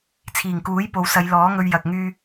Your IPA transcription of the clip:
t͡sʰiː˨˩ŋkuː˨˥j po˨wsɐ˨˧jlɔː˨˥ŋɵ˧ɥ jɐ˧k̚ŋyː˥

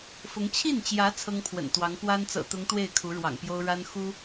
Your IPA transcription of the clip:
fʊ˧˥ŋ t͡ɕʰi˥˩nt͡ɕjä˧˥ t͡sʰɤ˥ŋpʰwə̰˨˩nt̪wɑ˧˥ŋ pwa˥n t͡sɤ̰˨˩t̪ʊ˧˥ŋ t̪we˥˩ɪ̯ kʰu˧˥ɻwɑ̰˨˩ŋpjo˥ʊ̯ ɻa˥n xu˥

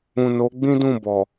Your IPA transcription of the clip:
ũ˨no˨˦ɡ͡bĩ˦ dũ˦˨bɔ˨

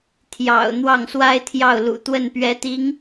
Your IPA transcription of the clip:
t̪ʰjɑ̰˨˩ʊ̯ n̪wɑ˥˩ŋswa˥ɪ̯t̪ʰjɑ˥˩ʊ̯lṵ˨˩ t̪wə˥˩npɥɛ˧˥t̪i˧˥ŋ

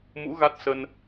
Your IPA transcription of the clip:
mṵ˧˥ ɣa˦˥t̚sə˧n

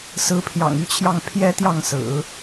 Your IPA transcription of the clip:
sɹ̩˧˥pʰjɑ̰˨˩ŋy˧˥t͡ɕʰjɑ˥˩ŋ pʰjɛ˥t̪jɑ˥˩ŋsɹ̩˨˩˦

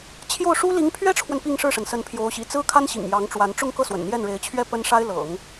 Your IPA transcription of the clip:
t͡ɕʰjo˥˩ʊ̯ʂu˥ li˧˥ŋpʰɥɛ˥ʈ͡ʂʰwə˨n pi˥˧ŋʂɻ̩˥˩ʂə˩n sə˧˥npʰjo˧˥ʊ̯ɕḭ˨˩ t͡sɹ̩˥kʰa˥n ɕḭ˨˩ŋjɑ˧˥ŋʈ͡ʂwa˧˥n ʈ͡ʂʊ˥˧ŋ kɤ˥˩ swə̰˨˩nn̪jɛ˥˩nɻe˧˥ɪ̯ t͡ɕʰɥɛ˥pə˥nʂa˥ɪ̯ lɤ̰˨˩˦ŋ

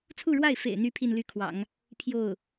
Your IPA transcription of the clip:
t͡sʰu˥˧ɻwa˥˩ɪ̯fḛ˨˩ɪ̯n̪y˧˥ pʰi˥˧nly˥˩kʰwɑ̰˨˩˦ŋ | pʰjo˥˩ʊ̯

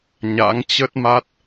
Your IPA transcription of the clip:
ɲa̰˧˥ŋ t͡ɕə˦˥t̚ma˦˥t̚

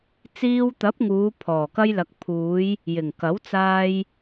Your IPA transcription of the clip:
t͡siː˧wt̪ɐ˨˥p̚ŋuː˨˧ pʰɔː˨˩kɐ˧jlɐ˨k̚ pʰuː˨˧j | jɪ˨˩ŋkɐ˨˥wt͡saː˧j

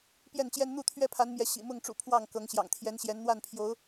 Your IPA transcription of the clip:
pjɛ˥˨nt͡ɕjɛ˦n n̪u˥˨t̪ʰɥɛ˦pʰa˨˦nmjɛ˨˦ ɕḭ˨˩mʊ˥˨ŋʈ͡ʂṵ˨˩ pʰwɑ˥˨ŋkɤ˨˦ŋ ɕjɑ̰˨˩ŋt̪ʰjɛ˨˦n ɕjɛ˨˦nn̪wa˥˨npʰjo˨˦ʊ̯

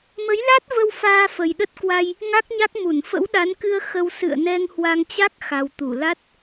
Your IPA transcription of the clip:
mə˨˦jla˦˥t̚və˧w faː˧fə˨˩jɗə˦˥t̚kwa˧j | ŋa˦˥k̚ɲa˦˥k̚ mu˧˩nfə̰˧˥wɗa˨˦nkɨ˧ə̯ xə˧w sɨ̰˧˨ə̯nɛ˧ŋhwa˧ŋt͡ɕa˦˥k̚ xa˨˩wt̪u˧˩la˦˥t̚

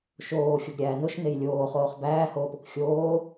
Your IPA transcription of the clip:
ʃoː xʲoɡɾʲæːnoʃ nejlʲoːχoːχ bæːhoːpok xʲoː

